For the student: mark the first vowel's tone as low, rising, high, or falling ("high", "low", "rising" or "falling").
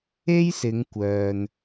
high